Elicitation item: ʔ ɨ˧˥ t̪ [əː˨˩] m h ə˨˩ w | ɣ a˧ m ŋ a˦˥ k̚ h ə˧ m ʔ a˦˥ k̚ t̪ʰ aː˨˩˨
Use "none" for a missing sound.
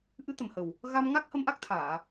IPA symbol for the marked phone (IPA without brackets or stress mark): ə˨˩